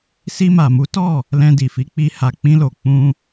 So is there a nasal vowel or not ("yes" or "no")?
yes